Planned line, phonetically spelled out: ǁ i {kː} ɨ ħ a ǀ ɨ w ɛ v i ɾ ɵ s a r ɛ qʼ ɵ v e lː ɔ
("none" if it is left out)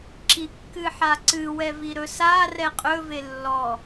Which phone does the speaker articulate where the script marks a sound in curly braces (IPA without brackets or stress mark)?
kː